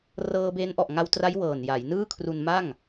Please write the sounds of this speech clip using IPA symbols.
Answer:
r ɤː˧ b e˦˥ n ʔ ɔ˨˩ ʔ ŋ a˧ w t r a˦˥ j w ɤː˨˩ n j a˩˦ j n ɯː˥˩ kʰ r u˧ n m a˥˩ ŋ

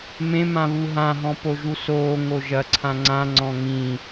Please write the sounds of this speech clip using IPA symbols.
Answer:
m ẽ m ã β u ɦ ã ɦ ɔ̃ p o ʒ u s oː ŋ o ʒ ɐ ǀʰ ã ŋ͡ǀ ã ŋ͡ǀ ɔ̃ ŋ ĩ

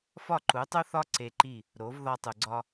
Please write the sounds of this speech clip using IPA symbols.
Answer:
f ɒ˥˩ ǃ u˩˥ tˤ u˥ θ ɒ˥ ǀ e˧ ǃ i˥˩ | ɾ o˩˥ v ð ɒ˧ tˤ u˩ ɡ͡ǀ ɒ˧

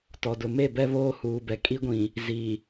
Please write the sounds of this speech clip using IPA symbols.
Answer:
t ɔ˨ d ʊ˨ m e˦˨ b ɛ˦ β oː˦ h uː˨ b ɛ˨ kʼ i˦ ɡʷ ĩ˨ | z i˨

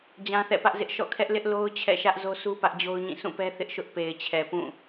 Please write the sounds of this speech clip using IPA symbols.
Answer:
d͡ʑ ã˦ θ ɛ̰˦˨ p ä˦ ʔ z ɪ˦ ʔ ʃ ɔ̰˦˨ kʰ ɛ˦ ʔ l ɪ˦ ʔ l o˦ ʊ̯ t͡ɕʰ ɛ̰˦˨ ʃ ä˦ ʔ z o˦ sʰ u˦ p ä˦ ʔ d͡ʑ o˦ ʊ̯ ɲ ĩ˦˨ sʰ ũ˦˨ p ɛ˦ θ ɪ˦ ʔ ʃ ʊ˦ ʔ p e˨ ɪ̯ t͡ɕʰ ɛ˨ p ũ˦˨

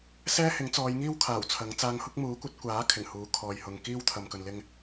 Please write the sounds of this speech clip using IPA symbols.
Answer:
s ɛː˥ h ɪ˨˥ ŋ t͡s ɔː˨˧ j ŋ iː˥ w kʰ aː˨˩ w t͡sʰ ɐ˨˥ ŋ t͡s aː˧ ŋ h ʊ˥ k̚ m uː˨˥ kʷ ɐ˨˥ t̚ kʷ aː˨˥ kʰ ɪ˨˩ ŋ h uː˨˥ kʰ ɔː˨ j h ʊ˨ ŋ k iː˥ w t̪ʰ ɐ˨ m k ɵ˨ n l ɪ˧ ŋ

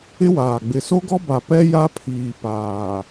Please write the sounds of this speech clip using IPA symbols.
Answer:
ɪ˦ w aː˨ ɡ͡b ɪ˨ s o˦ ɡ ɔ˦ b a˨ p ɛ˦ j a˦ pʰ iː˨ p aː˨

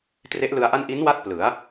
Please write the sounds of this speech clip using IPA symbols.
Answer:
t r e˦˥ ʔ l ɯ˧ a̯ ʔ a˥˩ n ʔ i˦˥ n w a˦˥ t̚ p l ɯ˩˦ a̯

